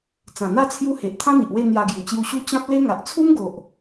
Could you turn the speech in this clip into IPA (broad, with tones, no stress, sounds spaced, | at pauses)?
t͡s ã˨˩ n̪ a˥˧ t͡sʰ j u˦ h e˨ ʔ t̪ʰ ã˦ n̪ i˨ ʔ w e˥˧ n̪ j a˧ ɡ j u˨˩ t͡ɕ j u˧ ɕ u˦ t͡ɕ ã˦ p̚ l e˦ ŋ a˨ ʔ t͡sʰ u˦ m ɡ o˨ ʔ